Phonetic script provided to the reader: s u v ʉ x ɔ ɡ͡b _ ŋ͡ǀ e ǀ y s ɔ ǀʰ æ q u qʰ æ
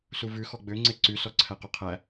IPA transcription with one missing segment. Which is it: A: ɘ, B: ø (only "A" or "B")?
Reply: B